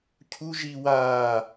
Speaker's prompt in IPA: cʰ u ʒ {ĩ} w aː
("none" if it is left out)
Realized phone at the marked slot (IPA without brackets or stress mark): i